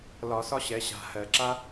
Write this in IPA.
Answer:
l ɒ˧˩˧ s ɒ˥ ɕ ɛ˩˥ ɕ a̤˩˧˩ h ɜ˧˩˧ ǁ a˥

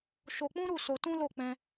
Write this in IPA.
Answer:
ʃ o˧ k͡p ũ˦ ɾ u˦˨ s o˧ t ũ˦ l o˦˨ k͡p ɛ̃˧

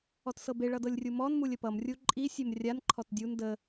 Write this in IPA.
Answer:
ɔ t s ɤ b e ɭ ʌ d ɤ lʲ rʲ u m ɔ n m u lʲ ə p ʌ m rʲ u ǃʼ i sʲ e m rʲ a n ǃʰ ɔ t dʲ u n d ə

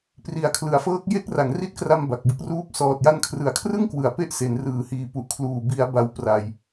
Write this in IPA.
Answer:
p r i˨˩ a̯ kʰ l ɯ˩˦ a̯ f ɤː˦˥ k̚ j e˦˥ k̚ r a˩˦ ŋ r i˦˥ t̚ k r a˧ m b a˨˩ k̚ b ɯ˦˥ k̚ r uː˥˩ p̚ s ɔː˨˩ t̚ j a˧ n kʰ r ɯ˩˦ a̯ kʰ r ɯ˥˩ ŋ k w ɯ˩˦ a̯ p e˥˩ ʔ s e˩˦ n r ɯː˩˦ h iː˨˩ p u˨˩ ʔ kʰ l uː˨˩ b i˩˦ a̯ b a˦˥ w p r a˨˩ j

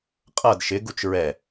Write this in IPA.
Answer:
qʼ ʌ d ʃ ɪ ɡ u t͡ʃ ɹ ɛ

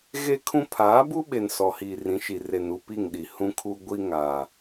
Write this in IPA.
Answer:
ɣ e˦ kʰ ũ˦ pʰ aː˨˦ b u˦ ɓ e˨ n s ɔ˨ h iː˨ r ĩ˨˦ ʃ i˨ r e˨ n u˦˨ p i˦˨ ŋ ɗ i˨ h ũ˦ kʰ u˦ ɡʷ i˦ ŋ a˨

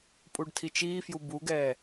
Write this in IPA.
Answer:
pʼ u ɖ tʰ i t͡ʃ iː f j u b u ɡ ɛː

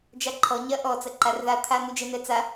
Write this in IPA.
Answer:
d͡ʒ a ǃʰ ɔ ɲ ɐ ʔ ɔ t͡s ɐ ǃ a r ð a t̪ʰ a n̪ u d͡ʒ ɛ n̪ ɛ t͡s a

